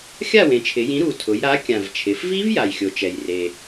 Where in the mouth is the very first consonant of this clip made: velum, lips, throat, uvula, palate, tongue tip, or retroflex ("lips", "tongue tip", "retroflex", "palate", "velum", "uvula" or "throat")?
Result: velum